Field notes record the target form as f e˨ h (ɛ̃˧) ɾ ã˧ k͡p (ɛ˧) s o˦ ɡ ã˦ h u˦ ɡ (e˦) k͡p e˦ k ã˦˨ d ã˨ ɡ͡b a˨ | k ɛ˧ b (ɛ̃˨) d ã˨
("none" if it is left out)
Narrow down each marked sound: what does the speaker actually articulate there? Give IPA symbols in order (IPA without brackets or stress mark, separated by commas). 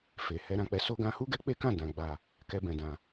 ɛ˧, ɛ˧, ɛ˦, ɛ̃˨